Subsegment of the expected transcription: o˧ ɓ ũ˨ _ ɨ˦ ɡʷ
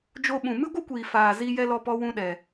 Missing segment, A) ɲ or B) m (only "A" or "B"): B